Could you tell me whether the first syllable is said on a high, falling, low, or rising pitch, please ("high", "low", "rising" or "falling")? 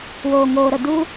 low